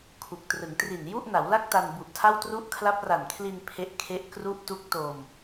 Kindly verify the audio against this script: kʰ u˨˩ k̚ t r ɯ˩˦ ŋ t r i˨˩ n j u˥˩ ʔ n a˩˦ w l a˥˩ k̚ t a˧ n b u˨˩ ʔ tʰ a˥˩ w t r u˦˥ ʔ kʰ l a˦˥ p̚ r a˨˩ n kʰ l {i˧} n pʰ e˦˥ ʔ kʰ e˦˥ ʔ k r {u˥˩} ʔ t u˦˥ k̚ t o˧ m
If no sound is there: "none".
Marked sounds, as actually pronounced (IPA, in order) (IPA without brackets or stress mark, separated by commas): i˧, u˥˩